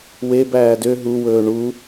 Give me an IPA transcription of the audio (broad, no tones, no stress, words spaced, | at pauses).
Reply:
webæː dø ɦuwɵː ɳu